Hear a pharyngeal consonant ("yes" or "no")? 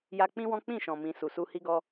no